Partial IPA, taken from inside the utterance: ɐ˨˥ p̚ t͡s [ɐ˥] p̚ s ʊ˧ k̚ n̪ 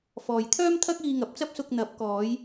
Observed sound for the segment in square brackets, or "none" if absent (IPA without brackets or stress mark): ɐ˥